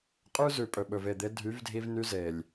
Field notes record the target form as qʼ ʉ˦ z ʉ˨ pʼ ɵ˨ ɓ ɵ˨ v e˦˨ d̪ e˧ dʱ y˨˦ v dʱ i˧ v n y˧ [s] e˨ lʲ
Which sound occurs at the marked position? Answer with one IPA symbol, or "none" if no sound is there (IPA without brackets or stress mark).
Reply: z